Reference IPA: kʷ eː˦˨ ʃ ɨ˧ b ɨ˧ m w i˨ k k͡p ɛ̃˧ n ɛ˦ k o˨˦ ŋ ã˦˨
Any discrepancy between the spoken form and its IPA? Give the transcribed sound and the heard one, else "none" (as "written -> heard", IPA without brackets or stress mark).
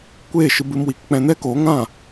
none